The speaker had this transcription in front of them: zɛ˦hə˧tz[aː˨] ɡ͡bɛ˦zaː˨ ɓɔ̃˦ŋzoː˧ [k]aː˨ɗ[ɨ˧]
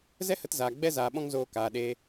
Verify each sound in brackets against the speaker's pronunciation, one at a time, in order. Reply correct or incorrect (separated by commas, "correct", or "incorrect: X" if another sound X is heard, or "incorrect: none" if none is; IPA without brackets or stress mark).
correct, correct, incorrect: e˧